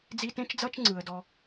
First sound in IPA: d͡z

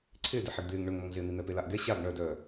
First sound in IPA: ǀʰ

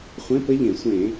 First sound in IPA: χʷ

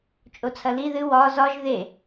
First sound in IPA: t͡ʃʼ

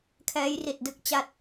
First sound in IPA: kʰ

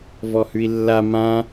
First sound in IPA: v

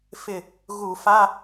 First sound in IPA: f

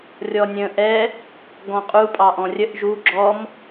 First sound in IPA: rʲ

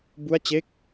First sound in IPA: b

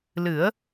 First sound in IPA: l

